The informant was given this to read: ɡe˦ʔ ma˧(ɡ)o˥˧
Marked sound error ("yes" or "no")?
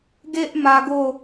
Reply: no